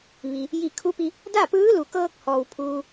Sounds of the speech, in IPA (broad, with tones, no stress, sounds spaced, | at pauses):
ʋ i˩ | j i˧˩ kʰ u˧˥ p i˧ | d a˥˨ p ɯː˧˥ l u˩ k ɤː˧ k̚ h ɔː˩ w pʰ uː˧